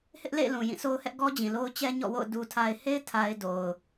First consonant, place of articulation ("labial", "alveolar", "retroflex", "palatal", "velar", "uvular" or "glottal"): glottal